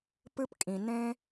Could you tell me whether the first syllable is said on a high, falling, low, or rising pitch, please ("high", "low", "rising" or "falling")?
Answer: high